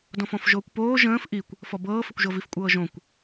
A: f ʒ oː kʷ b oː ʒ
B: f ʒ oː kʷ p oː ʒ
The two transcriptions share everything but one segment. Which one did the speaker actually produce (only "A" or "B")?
B